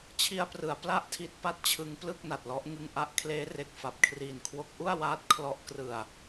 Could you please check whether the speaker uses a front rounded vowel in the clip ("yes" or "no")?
no